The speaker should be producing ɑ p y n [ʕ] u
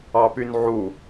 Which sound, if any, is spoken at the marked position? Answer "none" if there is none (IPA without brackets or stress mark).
ʕ